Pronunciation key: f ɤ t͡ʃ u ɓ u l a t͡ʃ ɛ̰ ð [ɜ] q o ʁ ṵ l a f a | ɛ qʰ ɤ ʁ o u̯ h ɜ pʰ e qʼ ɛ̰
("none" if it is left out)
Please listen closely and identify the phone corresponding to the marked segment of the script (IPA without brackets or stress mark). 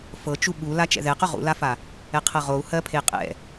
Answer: ɛ